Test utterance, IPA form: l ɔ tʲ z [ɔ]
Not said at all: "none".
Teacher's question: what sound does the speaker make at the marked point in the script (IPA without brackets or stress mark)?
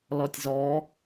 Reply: ɔ